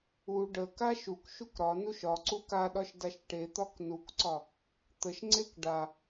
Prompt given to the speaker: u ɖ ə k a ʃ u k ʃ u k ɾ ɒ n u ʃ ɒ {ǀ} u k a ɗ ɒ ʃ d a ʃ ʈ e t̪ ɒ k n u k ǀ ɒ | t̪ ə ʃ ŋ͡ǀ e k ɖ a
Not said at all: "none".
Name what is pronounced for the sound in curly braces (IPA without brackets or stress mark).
ǀ